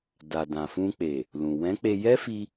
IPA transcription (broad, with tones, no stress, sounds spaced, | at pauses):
d a˨ d ã˨ f ũ˧ k͡p e˨ | l ũ˨ w ɛ̃˨˦ k͡p e˧ j ɛ˦ f i˧